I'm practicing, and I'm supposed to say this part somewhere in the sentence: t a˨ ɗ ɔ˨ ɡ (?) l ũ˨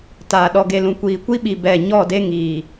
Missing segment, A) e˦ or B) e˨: B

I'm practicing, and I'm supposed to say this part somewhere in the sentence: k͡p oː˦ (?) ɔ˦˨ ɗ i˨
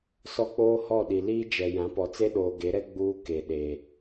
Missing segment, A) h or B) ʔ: A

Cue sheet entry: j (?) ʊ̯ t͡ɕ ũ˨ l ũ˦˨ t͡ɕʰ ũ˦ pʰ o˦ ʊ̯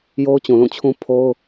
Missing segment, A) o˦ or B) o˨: A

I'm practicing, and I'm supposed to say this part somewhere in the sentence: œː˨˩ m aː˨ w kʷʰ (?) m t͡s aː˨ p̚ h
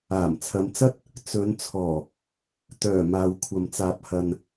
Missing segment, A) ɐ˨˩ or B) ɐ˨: B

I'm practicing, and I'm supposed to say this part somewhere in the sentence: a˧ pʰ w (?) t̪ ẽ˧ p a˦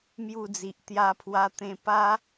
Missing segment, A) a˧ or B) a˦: A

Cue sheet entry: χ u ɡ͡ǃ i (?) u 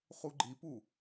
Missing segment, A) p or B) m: A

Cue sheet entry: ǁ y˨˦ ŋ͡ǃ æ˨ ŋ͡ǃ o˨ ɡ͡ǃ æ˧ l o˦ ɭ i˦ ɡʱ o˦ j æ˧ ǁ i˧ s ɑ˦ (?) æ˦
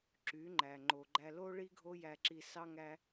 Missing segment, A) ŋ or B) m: A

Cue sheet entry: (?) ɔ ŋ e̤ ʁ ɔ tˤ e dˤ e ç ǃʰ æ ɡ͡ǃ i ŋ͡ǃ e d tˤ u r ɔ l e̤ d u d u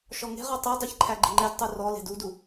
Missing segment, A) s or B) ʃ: B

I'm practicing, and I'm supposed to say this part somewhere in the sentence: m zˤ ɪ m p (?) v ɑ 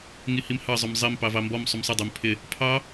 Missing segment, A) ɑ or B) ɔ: A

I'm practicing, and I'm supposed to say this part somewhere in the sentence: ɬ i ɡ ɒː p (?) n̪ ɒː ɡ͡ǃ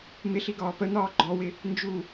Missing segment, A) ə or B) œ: A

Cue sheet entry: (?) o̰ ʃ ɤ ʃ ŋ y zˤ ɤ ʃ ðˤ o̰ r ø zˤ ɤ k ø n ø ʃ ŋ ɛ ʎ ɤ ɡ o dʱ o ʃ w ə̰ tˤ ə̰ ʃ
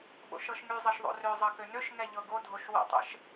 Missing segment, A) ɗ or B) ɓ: B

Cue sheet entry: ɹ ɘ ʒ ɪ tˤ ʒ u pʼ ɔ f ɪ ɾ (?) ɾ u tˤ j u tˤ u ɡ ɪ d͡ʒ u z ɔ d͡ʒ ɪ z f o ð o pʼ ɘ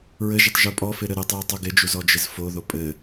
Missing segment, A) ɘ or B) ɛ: A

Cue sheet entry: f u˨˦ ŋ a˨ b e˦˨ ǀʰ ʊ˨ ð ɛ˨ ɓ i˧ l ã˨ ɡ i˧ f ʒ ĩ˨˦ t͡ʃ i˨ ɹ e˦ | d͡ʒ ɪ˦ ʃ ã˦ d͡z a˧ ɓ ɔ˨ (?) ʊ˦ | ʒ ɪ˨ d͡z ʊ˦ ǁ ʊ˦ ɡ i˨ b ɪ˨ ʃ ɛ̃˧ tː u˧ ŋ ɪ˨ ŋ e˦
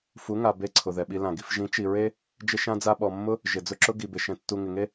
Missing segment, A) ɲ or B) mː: B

